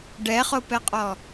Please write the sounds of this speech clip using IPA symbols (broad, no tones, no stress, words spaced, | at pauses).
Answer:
ɖɛχopɛqʼɔ